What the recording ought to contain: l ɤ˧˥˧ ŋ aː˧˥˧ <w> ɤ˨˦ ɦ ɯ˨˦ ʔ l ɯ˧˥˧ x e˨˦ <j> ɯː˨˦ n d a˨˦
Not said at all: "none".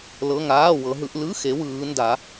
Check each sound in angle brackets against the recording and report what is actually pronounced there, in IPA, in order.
w, w

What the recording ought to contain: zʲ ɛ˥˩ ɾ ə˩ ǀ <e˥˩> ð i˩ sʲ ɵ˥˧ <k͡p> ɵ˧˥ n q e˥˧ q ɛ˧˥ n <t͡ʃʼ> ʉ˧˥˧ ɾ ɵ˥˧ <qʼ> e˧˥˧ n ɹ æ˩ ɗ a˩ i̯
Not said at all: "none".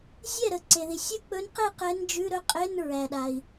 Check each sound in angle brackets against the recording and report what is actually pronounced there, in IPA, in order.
e˩, k͡p, d͡ʒ, qʼ

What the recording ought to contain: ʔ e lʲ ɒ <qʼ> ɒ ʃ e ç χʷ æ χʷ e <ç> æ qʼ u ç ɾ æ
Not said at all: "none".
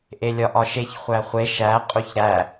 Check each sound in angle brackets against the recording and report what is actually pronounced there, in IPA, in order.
ʔ, ʃ

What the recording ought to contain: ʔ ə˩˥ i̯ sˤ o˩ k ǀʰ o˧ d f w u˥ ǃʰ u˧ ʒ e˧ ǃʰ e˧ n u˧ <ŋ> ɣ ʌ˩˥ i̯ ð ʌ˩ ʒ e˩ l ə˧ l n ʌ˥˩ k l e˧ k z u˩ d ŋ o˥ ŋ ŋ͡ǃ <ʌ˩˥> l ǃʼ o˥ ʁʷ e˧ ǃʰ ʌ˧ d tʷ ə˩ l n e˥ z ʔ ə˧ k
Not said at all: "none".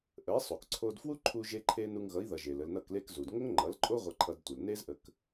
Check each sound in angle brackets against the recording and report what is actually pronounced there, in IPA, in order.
ŋ, ʌ˩˥

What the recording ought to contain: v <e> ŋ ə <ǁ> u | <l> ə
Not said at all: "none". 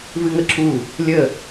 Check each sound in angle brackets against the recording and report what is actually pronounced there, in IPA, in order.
ɨ, ǁ, lʲ

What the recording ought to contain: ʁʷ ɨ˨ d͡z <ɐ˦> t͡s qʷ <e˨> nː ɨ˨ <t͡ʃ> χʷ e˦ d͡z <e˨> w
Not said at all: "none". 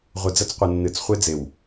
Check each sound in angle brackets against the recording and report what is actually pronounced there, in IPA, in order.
ɐ˦, ɨ˨, t͡s, e˨

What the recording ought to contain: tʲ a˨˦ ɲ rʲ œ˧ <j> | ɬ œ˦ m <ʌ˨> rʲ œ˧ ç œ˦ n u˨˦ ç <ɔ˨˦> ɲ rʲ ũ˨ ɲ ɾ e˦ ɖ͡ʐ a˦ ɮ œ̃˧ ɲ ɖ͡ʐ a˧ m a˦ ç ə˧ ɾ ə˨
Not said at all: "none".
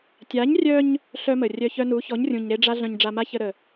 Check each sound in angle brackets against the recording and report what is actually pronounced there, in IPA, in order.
ɲ, ə˨, ɔ˨˦

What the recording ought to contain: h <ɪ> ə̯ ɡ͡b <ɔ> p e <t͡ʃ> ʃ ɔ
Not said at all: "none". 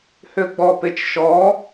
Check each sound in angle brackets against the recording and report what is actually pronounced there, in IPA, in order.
ʏ, ɔ, t͡ʃ

